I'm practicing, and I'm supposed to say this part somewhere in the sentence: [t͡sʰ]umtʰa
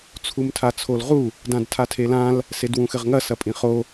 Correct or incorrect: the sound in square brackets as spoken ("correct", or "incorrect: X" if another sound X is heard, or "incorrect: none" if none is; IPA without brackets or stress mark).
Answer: correct